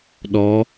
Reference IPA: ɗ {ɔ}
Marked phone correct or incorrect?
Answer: correct